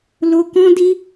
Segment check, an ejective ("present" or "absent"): absent